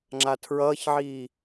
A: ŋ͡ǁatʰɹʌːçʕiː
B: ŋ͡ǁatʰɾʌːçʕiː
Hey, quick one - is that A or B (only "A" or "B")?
A